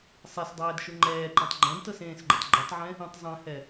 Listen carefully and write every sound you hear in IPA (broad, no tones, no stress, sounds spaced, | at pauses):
sˤ ɛ s dˤ ɛː d ʃ u ŋ͡ǃ ɛː ǃ ẽ tˤ ɡ͡ǃ ɛ̃ d t ɤ s ẽː s ɡ͡ǃ u tˤ ɡ͡ǃ i tˤ ʕ ɛ̃ | ĩ tˤ zˤ ɛ̃ h ɛ